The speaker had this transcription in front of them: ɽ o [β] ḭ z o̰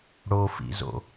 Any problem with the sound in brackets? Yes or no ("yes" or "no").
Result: yes